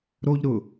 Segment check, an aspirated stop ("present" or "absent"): absent